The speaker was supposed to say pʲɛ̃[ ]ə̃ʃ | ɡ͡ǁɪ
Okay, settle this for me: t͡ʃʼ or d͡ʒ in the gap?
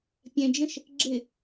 d͡ʒ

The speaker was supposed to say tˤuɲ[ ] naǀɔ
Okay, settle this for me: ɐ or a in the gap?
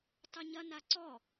ɐ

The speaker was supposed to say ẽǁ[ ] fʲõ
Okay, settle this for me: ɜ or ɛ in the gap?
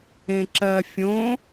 ɜ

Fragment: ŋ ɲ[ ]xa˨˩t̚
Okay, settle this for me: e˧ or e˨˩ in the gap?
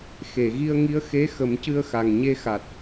e˧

